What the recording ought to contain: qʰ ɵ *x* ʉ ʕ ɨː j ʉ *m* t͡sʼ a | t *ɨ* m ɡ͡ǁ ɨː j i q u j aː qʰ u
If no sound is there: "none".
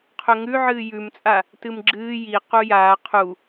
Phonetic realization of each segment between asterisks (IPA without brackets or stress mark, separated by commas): ŋ, m, ɨ